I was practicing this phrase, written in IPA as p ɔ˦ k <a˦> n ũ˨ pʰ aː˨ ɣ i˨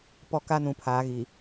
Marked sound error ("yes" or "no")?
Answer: no